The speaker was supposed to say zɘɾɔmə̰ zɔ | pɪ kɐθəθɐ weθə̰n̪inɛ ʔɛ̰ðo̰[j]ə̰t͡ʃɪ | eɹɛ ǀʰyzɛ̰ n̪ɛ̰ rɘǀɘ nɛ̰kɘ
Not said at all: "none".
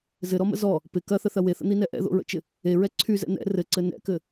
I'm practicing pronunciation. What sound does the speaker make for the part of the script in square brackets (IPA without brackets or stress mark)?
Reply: ɹ